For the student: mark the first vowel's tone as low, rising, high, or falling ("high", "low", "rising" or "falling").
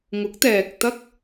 rising